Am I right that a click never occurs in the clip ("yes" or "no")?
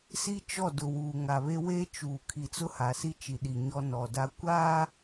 yes